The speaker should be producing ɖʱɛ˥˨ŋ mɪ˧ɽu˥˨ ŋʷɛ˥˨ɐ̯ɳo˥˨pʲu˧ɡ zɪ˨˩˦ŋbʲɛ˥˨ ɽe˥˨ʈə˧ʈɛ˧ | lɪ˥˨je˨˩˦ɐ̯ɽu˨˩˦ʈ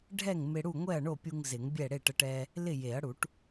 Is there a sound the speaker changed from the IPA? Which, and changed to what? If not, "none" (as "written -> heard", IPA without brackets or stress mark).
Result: ɡ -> ŋ